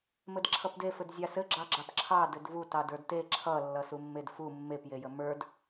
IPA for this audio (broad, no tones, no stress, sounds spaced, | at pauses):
m ɘ d ǁʰ ʌ p d e f ɘ d zʲ ɑ s ɘ ɡ͡ǁ ɑ ɡ͡ǁ ɑ p ǁʰ ɑ d ɘ d v u t ɑ d ə˞ d t e ǁʰ ʌ lː ʌ s u mː e d f u mː e p j e j ə m ə˞ d